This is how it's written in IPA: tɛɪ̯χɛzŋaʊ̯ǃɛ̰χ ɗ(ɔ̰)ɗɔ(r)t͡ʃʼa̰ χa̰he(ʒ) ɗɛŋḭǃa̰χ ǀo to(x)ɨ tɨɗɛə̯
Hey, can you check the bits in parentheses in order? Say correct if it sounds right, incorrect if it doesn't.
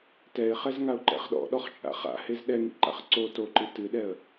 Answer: correct, incorrect: χ, incorrect: z, incorrect: ǃ

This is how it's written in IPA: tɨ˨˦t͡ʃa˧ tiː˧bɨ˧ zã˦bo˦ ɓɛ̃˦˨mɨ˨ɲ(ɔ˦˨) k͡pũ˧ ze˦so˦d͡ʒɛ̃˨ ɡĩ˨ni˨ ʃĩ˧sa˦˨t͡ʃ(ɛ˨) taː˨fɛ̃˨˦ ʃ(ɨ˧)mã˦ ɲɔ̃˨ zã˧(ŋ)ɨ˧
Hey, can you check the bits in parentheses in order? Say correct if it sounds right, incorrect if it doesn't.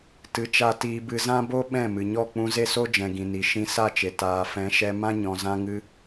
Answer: correct, incorrect: e˨, incorrect: ɛ˧, correct

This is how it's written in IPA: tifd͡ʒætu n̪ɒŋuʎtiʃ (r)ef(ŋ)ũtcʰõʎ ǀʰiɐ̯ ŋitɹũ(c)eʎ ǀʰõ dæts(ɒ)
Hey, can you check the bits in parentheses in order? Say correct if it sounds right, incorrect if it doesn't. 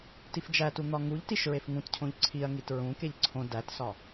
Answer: incorrect: ɹ, correct, incorrect: k, correct

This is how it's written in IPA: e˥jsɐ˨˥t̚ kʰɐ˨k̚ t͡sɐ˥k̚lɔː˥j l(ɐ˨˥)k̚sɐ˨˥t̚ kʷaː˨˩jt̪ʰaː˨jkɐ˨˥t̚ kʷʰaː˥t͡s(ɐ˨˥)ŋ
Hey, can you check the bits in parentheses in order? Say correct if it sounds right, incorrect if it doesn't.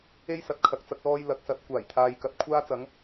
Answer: correct, correct

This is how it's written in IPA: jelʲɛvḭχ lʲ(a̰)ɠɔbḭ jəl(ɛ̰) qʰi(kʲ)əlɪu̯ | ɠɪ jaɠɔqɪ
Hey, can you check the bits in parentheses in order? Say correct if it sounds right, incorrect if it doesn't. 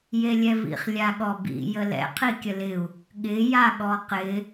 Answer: incorrect: a, correct, correct

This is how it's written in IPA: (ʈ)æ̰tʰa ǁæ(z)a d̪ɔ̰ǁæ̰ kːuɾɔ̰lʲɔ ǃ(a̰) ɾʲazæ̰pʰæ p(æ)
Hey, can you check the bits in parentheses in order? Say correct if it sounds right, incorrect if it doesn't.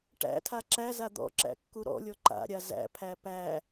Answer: correct, correct, correct, correct

